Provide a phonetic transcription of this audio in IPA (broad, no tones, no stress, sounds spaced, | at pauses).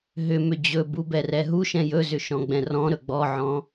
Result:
ɦ ʏ m ʏ d͡ʑ ɵ b u b ɛ r ɛ ɦ u ʃ ɛ̃ j ɵ z ʏ ʃ ɔ̃ ɡ͡b ɛ̃ r ɔ̃ ɾ ɵ ɡ͡b ɔ ʕ ɔ̃